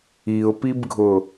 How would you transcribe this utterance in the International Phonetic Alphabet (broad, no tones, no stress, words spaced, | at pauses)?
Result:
iʊ̯pibɡʱʊ